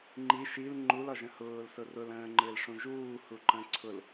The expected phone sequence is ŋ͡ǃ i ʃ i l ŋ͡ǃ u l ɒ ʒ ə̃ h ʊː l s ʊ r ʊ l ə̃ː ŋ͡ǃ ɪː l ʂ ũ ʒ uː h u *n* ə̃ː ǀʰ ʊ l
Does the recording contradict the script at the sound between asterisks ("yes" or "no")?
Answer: yes